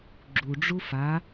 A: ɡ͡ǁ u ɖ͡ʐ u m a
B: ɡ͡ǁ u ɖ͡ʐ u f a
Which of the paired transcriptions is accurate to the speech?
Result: B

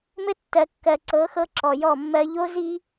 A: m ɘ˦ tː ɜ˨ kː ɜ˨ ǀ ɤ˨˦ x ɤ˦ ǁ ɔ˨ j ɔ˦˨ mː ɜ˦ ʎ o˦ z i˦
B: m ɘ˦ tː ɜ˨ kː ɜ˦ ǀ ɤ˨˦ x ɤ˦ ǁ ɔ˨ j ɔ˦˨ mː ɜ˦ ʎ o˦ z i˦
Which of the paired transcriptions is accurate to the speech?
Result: A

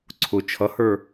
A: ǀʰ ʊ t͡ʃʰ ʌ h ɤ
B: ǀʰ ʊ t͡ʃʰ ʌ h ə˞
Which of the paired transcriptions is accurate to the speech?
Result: B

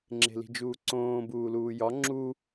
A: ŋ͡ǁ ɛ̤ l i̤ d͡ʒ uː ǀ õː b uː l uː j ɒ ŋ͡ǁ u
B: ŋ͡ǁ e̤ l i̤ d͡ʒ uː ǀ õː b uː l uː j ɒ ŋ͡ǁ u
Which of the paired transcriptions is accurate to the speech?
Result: B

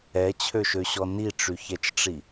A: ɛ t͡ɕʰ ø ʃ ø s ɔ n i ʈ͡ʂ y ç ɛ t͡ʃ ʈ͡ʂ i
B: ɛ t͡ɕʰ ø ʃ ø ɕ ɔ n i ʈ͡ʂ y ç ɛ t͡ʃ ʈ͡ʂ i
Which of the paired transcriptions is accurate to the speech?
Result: B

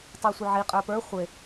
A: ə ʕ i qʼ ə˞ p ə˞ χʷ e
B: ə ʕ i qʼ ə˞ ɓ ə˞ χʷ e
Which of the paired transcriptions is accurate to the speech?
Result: A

